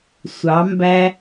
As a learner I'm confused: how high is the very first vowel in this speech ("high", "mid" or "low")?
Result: low